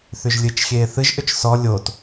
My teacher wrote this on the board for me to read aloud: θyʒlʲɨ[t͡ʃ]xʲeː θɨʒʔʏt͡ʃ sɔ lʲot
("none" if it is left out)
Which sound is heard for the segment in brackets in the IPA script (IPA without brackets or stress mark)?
t͡ʃ